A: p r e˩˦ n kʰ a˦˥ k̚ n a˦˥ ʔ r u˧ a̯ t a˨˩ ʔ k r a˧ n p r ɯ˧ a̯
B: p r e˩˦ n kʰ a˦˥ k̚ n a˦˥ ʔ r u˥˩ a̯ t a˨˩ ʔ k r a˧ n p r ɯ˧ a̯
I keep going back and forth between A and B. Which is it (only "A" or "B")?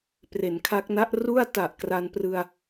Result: B